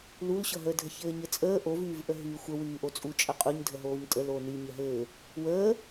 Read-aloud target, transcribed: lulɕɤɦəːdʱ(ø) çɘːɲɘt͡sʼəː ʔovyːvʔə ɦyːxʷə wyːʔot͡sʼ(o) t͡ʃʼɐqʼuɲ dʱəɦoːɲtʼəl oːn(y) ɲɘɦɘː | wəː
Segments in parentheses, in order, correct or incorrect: incorrect: ə, incorrect: u, correct

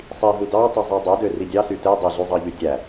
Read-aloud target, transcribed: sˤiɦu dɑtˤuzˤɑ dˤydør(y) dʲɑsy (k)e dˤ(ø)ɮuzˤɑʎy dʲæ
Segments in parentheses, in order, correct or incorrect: incorrect: i, incorrect: t, correct

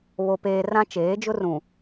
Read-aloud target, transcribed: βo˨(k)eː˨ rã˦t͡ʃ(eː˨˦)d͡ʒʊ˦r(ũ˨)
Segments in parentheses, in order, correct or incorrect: incorrect: p, correct, correct

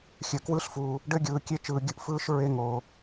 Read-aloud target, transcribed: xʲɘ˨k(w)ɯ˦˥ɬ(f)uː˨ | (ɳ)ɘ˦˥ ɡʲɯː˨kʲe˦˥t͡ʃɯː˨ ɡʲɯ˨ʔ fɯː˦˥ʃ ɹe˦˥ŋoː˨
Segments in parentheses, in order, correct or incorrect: correct, correct, incorrect: ɖ

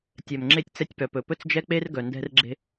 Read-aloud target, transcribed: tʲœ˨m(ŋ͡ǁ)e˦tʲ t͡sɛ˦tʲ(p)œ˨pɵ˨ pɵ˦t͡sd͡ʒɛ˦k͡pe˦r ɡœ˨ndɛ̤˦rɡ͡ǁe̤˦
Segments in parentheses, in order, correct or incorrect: correct, correct

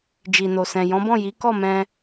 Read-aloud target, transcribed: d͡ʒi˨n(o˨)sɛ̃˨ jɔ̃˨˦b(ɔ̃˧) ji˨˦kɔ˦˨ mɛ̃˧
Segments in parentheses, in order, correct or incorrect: correct, incorrect: ɔ̃˦˨

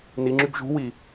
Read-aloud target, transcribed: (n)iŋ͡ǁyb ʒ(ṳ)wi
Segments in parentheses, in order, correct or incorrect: correct, correct

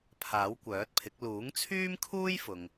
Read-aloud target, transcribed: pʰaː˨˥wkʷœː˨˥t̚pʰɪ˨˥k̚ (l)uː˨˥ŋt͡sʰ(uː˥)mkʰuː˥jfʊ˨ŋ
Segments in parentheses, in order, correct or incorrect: correct, incorrect: yː˥

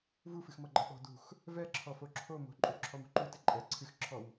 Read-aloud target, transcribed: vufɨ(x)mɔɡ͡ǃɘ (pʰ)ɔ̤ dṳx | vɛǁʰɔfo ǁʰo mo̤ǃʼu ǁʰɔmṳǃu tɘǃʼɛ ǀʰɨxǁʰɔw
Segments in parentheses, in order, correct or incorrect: correct, incorrect: ɓ

